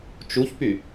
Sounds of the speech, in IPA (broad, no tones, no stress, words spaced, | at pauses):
t͡ʃuçpy